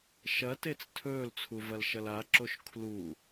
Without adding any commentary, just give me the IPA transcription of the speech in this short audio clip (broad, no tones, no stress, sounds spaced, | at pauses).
ʃ ɐ t e t͡s tʰ ɵː l t͡sʰ u v ɐ l ʃ ɐ l a ǁ o ʃ kʰ l u